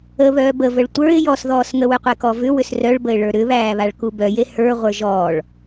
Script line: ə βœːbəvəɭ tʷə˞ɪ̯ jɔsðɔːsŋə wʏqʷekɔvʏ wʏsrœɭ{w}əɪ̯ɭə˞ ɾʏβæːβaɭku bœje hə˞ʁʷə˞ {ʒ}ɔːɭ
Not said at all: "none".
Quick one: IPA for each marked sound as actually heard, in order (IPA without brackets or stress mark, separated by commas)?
b, ʒ